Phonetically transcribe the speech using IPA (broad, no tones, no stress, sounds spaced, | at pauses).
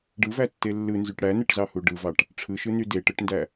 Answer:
ɖ ɯ v æ tː e lː ɯ n z y ʈ ɽ æ n ɯ ʈ z ɑ h u ɖ ɯ v ɑ ʈ | ʈ͡ʂʰ ɯ ʃ ɯ n y d e ʈ ɯ ʈ n d æ